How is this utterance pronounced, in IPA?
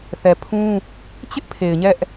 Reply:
θɛ˨pʰũ˦ | t͡ɕɪ˦ʔ pʰe˨ɪ̯ɲɛ˦ʔ

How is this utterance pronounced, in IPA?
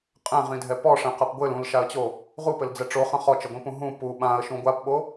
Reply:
qʼɛ̃ʁĩdʱɛ pɔʂɛ̃qɐp ɡʷɘl ũlʃaə̯t͡ɕo | ʁupɘld͡zɛ ʈ͡ʂoχɐ̃ χɔt͡ʃɘɡʷĩpũ ɦũ pu ɓãə̯ʃũ ɡʷapɓo

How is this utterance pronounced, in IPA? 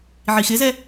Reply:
ʕixɪzɛ

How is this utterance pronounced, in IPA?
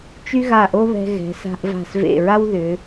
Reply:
t͡ʃy˥ɣa˧˩ʔo˥βɛ̤˧ ɣɛ̤˩˧sa̤˧ʔva̤˧˩s vḛ˧˩ɹa˥w ðʏ˩˧

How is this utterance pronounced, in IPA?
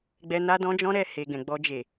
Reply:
ɡ͡bɛ˧ na˧dɔ̃˧ d͡ʒɔ̃˦ɾɛ˦˨ he˨ ɡɛ̃˨ ɡ͡bɔ˧ d͡ʒe˨

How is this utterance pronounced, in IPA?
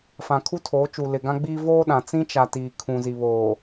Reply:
fã˨kʰu˦tʰoː˨˦t͡ʃu˨ lɪ˨ɡã˦ɡ͡biː˦ voː˦ɗã˨ t͡sĩ˦t͡ʃa˨ tiː˨kʰũ˨zi˨ βoː˨

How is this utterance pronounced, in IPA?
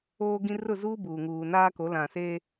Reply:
oː˦ɡĩ˦ rʊ˦˨zuː˦buː˨ŋuː˨ naː˦ko˨˦ lã˨seː˦

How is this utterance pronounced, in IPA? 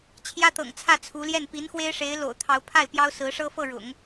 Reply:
t͡ɕʰjä˥t̪ɤ̰˨˩ŋt͡sʰä˥˩ t͡sʰu˧˥ljɛ˥˩n pi˧˥nxwe˥ɪ̯ʂe˧˥ɪ̯ lo̰˨˩ʊ̯t̪ʰɑ˧˥ʊ̯pʰa˥˩ɪ̯ pjɑ˥ʊ̯sɹ̩˧˥ ʂɤ˥fɤ˥˩ ɻʊ̰˨˩˦ŋ

